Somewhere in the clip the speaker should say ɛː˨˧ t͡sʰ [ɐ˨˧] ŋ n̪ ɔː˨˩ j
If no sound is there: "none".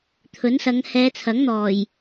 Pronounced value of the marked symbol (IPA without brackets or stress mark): ɐ˨˥